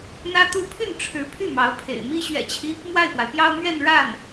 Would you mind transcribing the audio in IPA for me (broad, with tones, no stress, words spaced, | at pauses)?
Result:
n̪ä˥t̪u˥ pʰy˥˩n ʈ͡ʂʰɻ̩˧˥pʰy˥˩ mɑ˧˥ʊ̯pʰḛ˨˩ɪ̯ mi˥ ɕɥɛ̰˨˩t͡ɕʰi˦ | mwa˥˩ɪ̯pwa˩ɪ̯pjɑ˥ʊ̯ mɥɛ˥˧nɻa˥˩n